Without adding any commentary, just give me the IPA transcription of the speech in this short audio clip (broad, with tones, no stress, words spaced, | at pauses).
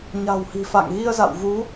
ɲa̤˨˩whi̤˨˩ fa̰˧˨ŋɣi˧ə̯za̰˧˨wvu˨˦